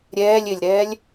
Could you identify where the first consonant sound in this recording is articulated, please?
alveolar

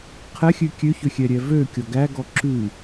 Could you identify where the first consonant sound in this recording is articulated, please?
uvular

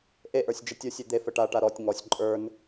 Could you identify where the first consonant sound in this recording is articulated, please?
glottal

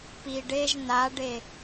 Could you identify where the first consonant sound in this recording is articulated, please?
labial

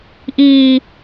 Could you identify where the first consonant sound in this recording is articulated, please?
glottal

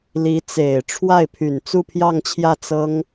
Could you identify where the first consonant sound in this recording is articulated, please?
alveolar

